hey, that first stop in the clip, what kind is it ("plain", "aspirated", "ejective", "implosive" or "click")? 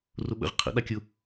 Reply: implosive